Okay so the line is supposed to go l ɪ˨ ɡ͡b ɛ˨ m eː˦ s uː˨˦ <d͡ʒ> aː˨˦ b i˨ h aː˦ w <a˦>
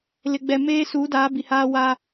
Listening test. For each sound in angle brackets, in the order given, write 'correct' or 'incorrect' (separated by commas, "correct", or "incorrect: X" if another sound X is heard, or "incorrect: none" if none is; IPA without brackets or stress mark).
incorrect: d, correct